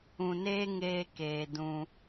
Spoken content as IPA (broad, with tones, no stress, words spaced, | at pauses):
ũ˨neː˧ ŋeː˧ keː˨ dũ˧